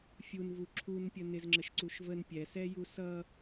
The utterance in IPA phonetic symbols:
fʲ u n v u ǁʰ u n pʲ ə n ɪ z ŋ͡ǁ ə ʃ ǀ u ʃ v ə n pʲ ɛ s ɛ j u s ʌ

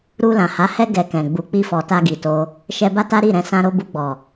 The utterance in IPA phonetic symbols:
ɾ u˧ l ã˨ h a˨˦ h ɛ˦ ɡ ɛ˧ k ɛ̃˨ ɡ͡b u˨ k͡p i˧ f ɔ˨ t a˧ ɡ i˨ t o˧ | ʃ ɛ˧ b a˦ t a˦ ɾ i˦˨ ɾ ɛ̃˧ s ã˧ ɾ o˧ b u˧ ɡ͡b ɔ˨

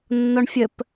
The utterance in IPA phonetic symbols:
nː ɒ ɳ fʲ ə p

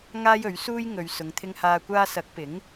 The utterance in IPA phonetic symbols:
ŋ aː˥ j ɵ˨˥ ɥ s uː˥ j ŋ ɵ˨ ɥ s ʊ˨ ŋ t̪ʰ ɪ˧ ŋ h aː˧ kʷ aː˧ s ɐ˨˥ k̚ p ɪ˨˥ ŋ

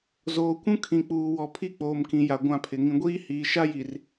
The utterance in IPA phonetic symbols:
z oː˨ kʷ ũ˦ kʰ ĩ˨ k͡p uː˨ w ɔ˨ pʰ i˦˨ k͡p oː˨ m k ĩ˨ j a˨ ɡʷ ã˦˨ pʰ ɪ˨ ŋ ĩ˨ ɡʷ iː˦ h iː˨ ʃ a˦ j i˨ r

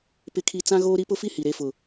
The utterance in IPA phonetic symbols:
p ɪ˦ kʰ i˦ t͡s ã˦ ɣ oː˦ ɾ i˦ p ʊ˦ f i˦ h i˨ ɾ e˦ f ʊ˨

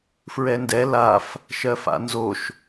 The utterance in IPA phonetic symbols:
f ɹ ɛ n d ɛ l a f | ʃ ɜ f a̰ n z o ʃ

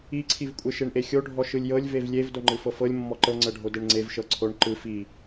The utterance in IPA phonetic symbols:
i ǀʰ i v kʷʼ e ʃ e ɳ ʔ e xʲ o ɖʱ ɔ ʃ ɯ lʲ j ɤ lʲ v e v lʲ e v d o ŋ͡ǃ ɯ f ɤ f ɤ lʲ mː ɔ ǃ ɤ ŋ͡ǀ ɤ ɖʱ o d e ɳ ŋ͡ǀ e v ʃ ɤ ǀʰ o ɳ ǃ ɯ f i

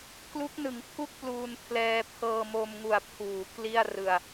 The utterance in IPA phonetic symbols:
k l u˦˥ k̚ n ɯ˩˦ ŋ pʰ u˥˩ k̚ p l uː˧ n pʰ l ɛː˧ pʰ ɤː˧ m o˧ m ŋ u˨˩ a̯ pʰ uː˩˦ k l i˥˩ a̯ r ɯ˧ a̯

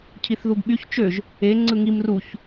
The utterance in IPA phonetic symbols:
cʰ i θ ð u ɡ ɓ y ç t͡ʃ ø ʒ | e ŋ͡ǀ ɯ ŋ i m r u ç

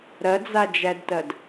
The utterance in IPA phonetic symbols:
ɾ ɐ d͡z a d͡ʒ æ d t ɐ d

